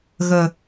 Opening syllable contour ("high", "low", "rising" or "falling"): low